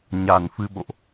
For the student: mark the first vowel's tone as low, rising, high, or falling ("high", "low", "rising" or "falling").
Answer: low